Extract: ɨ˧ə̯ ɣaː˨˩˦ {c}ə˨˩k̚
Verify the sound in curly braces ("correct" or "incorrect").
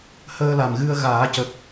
correct